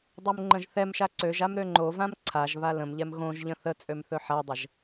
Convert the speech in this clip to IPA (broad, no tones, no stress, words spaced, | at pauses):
dˤomŋ͡ǃə̃ʒθɛmʃa ǀøʒam ɾøŋ͡ǃovãm ǀʰaʒβa lə̃mʎɛm ɣõʒʎə̃ θə t͡sʼømθɵħadˤəʒ